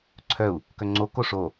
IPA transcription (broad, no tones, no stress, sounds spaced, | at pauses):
ǀʰ œ u̯ | k œ ŋ͡ǀ o k o ʂ o